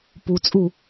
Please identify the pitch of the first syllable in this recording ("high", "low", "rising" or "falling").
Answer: low